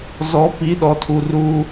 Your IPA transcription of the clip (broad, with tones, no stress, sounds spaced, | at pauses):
z ɔ˨˦ p i˨˦ ɗ ɔ˨ tʰ u˨ r u˦